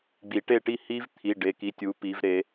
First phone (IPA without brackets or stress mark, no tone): ɡ͡b